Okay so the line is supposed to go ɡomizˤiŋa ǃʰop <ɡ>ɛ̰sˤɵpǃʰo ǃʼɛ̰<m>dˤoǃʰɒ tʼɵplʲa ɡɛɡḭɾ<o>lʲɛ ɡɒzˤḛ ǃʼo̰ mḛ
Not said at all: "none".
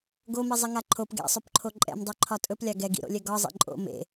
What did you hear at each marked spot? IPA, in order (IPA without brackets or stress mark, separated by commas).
ɡ, m, o̰